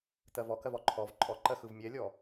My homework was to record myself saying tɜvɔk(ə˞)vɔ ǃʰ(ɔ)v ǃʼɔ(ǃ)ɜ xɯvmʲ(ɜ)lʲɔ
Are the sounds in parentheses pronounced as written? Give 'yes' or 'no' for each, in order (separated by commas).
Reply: no, yes, yes, no